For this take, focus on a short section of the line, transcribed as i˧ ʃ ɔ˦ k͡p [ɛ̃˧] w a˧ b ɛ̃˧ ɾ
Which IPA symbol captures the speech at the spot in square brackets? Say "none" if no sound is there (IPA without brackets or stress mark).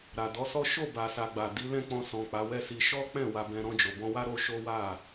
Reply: ɛ̃˦˨